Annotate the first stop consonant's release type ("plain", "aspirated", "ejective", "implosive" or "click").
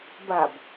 plain